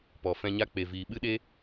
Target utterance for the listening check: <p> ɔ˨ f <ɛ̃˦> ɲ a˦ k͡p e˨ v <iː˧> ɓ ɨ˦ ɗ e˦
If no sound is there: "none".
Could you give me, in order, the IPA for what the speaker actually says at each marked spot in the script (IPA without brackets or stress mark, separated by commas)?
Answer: p, ɛ̃˧, iː˨